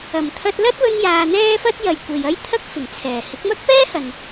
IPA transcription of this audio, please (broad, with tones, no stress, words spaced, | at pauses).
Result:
ɐ˨˩m t̪ʰɐ˥t̚ lɐ˥t̚wɵ˧njaː˨ n̪ɛː˥fɐ˥t̚ jɐ˨jkʷe˨jɐ˥jt̪ʰɐ˥k̚ fɪ˨˩ŋt͡sʰɛː˨˩ hɪ˨˥k̚mɐ˥k̚ pɛː˥hɐ˨n